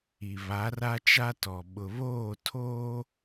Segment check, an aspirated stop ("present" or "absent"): present